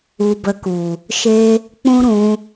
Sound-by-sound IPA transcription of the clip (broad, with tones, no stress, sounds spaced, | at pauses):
u˧ b ə˧ k u˨ | ʃ e˦ | k͡p ũ˦ ɾ ũ˧